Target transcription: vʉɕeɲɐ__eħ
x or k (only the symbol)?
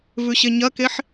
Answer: k